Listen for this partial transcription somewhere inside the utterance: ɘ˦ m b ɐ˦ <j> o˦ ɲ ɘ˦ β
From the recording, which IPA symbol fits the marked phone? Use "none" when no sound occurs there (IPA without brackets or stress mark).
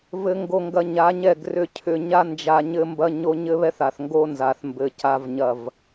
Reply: ɲ